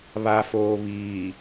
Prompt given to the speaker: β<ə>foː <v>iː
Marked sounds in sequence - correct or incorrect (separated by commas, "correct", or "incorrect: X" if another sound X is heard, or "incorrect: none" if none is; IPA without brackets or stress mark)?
incorrect: a, incorrect: β